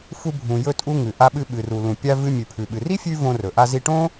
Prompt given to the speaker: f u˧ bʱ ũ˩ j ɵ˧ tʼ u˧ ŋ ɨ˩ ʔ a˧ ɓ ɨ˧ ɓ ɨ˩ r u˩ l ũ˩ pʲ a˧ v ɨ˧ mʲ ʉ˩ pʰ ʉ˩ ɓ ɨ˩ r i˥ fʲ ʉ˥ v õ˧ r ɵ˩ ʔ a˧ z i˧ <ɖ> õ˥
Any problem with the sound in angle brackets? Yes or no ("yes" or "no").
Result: yes